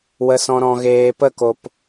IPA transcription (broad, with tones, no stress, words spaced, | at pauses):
wə˨sɔ̃˨ ɾɔ̃˨ ɣeː˨pə˦˨ko˨p